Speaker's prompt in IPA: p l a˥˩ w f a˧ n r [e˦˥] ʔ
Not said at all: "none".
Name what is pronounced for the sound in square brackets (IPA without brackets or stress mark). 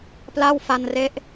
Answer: e˦˥